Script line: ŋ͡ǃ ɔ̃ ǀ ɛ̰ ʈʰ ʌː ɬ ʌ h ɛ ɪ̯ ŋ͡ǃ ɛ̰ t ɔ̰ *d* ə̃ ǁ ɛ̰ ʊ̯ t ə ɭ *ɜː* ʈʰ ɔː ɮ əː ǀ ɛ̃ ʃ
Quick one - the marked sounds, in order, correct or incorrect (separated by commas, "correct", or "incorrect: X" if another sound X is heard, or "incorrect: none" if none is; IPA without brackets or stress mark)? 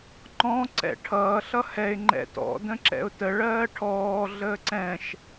correct, correct